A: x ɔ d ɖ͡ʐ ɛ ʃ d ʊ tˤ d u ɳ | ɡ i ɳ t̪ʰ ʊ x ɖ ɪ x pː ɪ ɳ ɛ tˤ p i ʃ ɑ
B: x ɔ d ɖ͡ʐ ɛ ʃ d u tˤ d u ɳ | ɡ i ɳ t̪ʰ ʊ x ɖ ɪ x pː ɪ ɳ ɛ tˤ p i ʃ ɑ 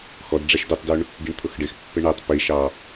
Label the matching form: B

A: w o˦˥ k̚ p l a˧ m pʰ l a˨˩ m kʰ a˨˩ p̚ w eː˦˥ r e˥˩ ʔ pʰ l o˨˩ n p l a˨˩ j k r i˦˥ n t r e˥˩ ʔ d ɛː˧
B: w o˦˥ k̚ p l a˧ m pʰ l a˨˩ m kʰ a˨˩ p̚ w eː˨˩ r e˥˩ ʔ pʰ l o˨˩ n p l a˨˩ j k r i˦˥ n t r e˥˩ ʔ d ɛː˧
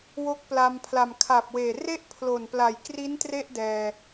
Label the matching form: B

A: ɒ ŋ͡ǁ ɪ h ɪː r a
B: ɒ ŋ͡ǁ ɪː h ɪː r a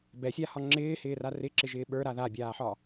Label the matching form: B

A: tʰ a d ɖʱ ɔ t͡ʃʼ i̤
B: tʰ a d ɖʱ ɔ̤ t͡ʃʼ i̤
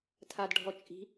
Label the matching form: A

